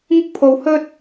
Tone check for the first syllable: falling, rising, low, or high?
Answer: high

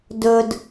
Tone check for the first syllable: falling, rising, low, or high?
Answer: low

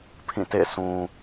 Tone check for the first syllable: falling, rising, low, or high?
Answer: falling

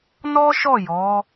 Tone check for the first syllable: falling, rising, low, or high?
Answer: high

